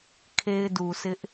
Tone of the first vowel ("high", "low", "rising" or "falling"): high